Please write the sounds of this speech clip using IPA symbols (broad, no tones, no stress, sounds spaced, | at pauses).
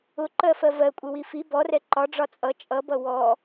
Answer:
ʊ ǃ ɜ f ɜ v ɜ kʷʼ ɪ w i f i b ɔ r ɛ ǃ ɒ ɖ͡ʐ ɒ t͡sʼ ʌ t͡ʃʼ ʌ b ʌ w ɔ